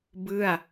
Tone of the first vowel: falling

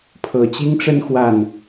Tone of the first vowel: low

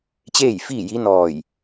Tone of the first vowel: falling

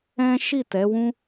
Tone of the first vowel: high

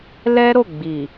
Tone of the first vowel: high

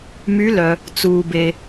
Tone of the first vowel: rising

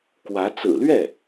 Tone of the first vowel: rising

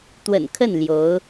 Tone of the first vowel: low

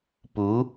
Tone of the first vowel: rising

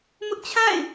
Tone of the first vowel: high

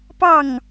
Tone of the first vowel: falling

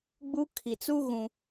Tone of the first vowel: high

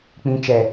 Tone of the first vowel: high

